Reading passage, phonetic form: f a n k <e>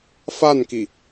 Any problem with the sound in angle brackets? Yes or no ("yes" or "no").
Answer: yes